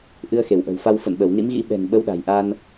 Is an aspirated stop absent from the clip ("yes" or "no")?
yes